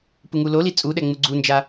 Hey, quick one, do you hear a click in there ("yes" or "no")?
yes